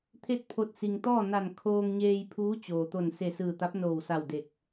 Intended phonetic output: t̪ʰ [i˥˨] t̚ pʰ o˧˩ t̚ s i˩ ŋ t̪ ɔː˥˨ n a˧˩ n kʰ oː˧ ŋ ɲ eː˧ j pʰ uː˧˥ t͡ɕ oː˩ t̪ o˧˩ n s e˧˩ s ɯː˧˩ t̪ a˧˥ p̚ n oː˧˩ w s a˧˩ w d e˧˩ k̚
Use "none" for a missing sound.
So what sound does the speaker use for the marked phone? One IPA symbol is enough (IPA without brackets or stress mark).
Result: e˥˨